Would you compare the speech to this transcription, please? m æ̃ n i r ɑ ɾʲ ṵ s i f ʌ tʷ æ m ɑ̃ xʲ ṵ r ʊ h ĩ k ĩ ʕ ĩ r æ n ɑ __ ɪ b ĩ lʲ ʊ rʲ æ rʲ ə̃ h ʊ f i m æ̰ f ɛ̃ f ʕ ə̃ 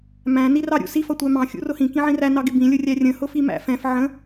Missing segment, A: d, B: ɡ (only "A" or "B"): B